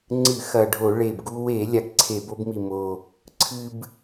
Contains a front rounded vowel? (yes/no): no